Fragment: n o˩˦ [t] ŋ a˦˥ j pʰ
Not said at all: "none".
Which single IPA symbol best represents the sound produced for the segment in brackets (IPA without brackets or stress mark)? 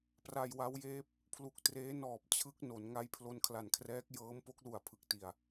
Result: n